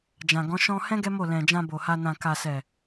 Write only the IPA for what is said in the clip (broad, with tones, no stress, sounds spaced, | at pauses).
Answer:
d͡ʒ ã˨ ɡ ɔ̃˨˦ ʃ ɔ̃˧ h ɛ̃˦ ɡ ɛ˦ m o˦˨ l ɛ̃˨ d͡ʒ ã˧ b o˨ h a˧ n ã˨ k a˨ s ɛ˨